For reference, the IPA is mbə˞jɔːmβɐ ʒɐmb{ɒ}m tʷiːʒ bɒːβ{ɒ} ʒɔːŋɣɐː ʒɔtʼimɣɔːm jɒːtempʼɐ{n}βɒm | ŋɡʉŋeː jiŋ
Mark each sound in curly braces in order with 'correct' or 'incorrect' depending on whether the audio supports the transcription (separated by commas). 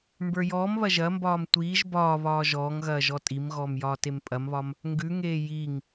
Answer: incorrect, incorrect, incorrect